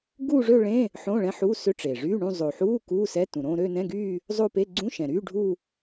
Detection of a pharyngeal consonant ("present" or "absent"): present